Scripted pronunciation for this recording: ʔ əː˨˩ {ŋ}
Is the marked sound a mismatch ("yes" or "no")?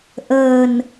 yes